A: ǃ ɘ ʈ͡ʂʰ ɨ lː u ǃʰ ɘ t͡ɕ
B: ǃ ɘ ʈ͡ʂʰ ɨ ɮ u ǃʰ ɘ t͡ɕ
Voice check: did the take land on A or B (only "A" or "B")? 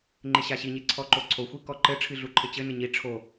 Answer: B